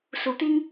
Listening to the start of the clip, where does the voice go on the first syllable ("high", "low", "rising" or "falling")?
low